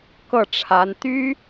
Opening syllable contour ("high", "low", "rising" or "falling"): falling